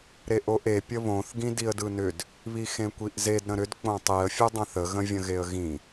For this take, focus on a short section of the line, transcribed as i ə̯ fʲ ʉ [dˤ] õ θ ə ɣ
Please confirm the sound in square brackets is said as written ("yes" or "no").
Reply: yes